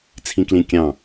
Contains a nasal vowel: yes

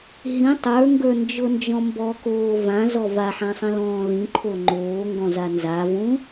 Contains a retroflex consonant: no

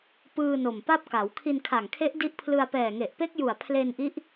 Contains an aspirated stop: yes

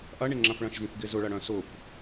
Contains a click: yes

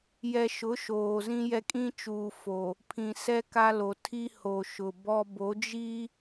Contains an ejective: yes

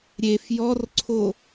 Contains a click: yes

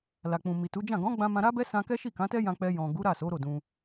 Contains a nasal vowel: yes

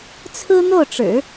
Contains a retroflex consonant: yes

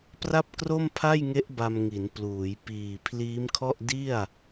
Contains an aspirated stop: yes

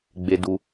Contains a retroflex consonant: no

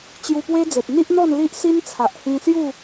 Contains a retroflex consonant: no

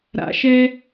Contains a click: no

